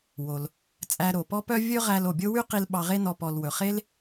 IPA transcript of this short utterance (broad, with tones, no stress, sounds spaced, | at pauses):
w o˩ l | t͡sʼ æ˧ ɾ o˩ p ɔ˥ p œ˥ vʲ ɵ˥ ʁ æ˧ l o˩ bʲ o˥ w y˥ q i˧ l ɓ ɑ˧ ʁ e˥ n ɔ˧ p ɔ˩ l w ɵ˩ χ e˥ l